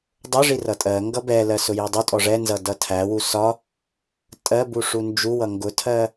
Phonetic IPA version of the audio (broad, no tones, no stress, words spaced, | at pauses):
dˤʊʐi rʌtʼɜŋɡʌ bɛlɜ sʊjidˤutʼɔ ʐɛnzʌ dʌtʰæwu sɒ | tʼɜbu ʂund͡ʒuwʌ ŋɡʊtʰɜ